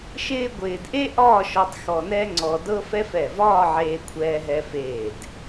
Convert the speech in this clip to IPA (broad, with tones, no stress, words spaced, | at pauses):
ʃɪː˥ɡʷɪː˧d ʔe˥ʔɒː˥˧ʃɔ˧tˤ xɔ˧nɛ˥ŋ͡ǀɔ˧ dɤ˥fɛ˥f ɛ˧˩vɒː˥˧ʕeː˧ kʷʰɛː˧ɦɛ˧feː˧˩d